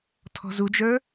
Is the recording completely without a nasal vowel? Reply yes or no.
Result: yes